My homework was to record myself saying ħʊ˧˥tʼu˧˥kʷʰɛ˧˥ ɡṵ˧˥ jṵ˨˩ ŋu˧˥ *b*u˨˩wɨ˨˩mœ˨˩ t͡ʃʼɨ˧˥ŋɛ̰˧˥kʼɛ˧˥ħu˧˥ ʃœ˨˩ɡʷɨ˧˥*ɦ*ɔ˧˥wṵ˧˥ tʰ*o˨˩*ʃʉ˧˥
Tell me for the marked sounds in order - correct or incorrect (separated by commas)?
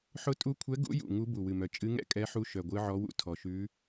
correct, incorrect, incorrect